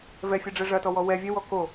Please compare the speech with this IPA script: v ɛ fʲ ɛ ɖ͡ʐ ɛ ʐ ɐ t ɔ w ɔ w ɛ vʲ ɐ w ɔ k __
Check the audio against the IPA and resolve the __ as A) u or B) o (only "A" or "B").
B